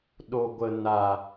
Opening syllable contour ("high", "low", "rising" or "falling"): low